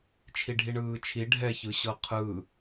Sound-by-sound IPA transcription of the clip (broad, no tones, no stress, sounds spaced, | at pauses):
t͡ʃʰ i ɖʱ i ɳ ɯː t͡ʃʰ i ɖʱ ɛ ç ɯ ɕ ɤ qʰ ɯ